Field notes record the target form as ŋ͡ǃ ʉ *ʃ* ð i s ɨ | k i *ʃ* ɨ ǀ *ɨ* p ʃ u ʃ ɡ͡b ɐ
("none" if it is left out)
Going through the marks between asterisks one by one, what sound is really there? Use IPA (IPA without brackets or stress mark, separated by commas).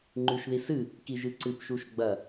ʃ, ʒ, ɨ